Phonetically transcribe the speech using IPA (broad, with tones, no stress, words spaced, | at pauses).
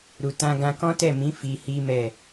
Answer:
ɾu˧tã˦ ɡã˧kɔ̃˦tɛ˦˨mĩ˨˦ fi˧hi˦mɛ˦˨